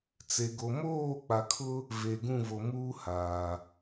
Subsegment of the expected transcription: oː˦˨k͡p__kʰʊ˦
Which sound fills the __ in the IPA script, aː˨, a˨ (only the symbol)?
a˨